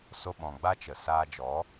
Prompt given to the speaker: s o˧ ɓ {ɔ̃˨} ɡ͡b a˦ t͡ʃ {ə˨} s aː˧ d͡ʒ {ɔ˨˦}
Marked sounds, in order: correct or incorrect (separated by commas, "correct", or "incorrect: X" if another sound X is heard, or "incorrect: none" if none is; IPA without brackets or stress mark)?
correct, correct, correct